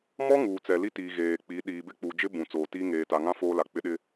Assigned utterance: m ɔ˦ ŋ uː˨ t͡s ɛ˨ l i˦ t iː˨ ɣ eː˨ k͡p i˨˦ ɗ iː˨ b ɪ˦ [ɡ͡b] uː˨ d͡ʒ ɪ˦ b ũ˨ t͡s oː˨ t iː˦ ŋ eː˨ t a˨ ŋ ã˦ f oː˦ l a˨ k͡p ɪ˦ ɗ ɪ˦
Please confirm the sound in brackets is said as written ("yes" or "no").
no